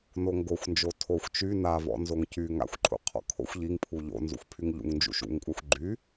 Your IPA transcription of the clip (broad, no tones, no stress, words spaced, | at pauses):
noŋɡoxʷnd͡ʒo tʰoxʷ t͡ʃy navɔ̰ nzoŋcy ŋa̰xʷǃʰṵ qʰɔ̰kʰo̰xʷ ʎiŋpʰu ʎo̰ nzṵxʷpʰyŋʎṵŋnd͡ʒṵ ʃṵŋkʷʼaxʷ ɡ͡ǃy